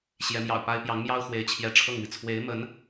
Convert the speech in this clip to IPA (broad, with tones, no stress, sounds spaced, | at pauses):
ɕ j ɛ˧˥ m j ɑ̰˨˩ ʊ̯ p a˥ ɪ̯ p j ɑ˧˥ ŋ m j ɑ˥ ʊ̯ x w e˧˥ ɪ̯ t͡ɕʰ j ɛ˧˥ ʈ͡ʂʰ ɤ˥˩ ŋ m i˩ t͡sʰ w e˧˥ ɪ̯ m ə˧˥ n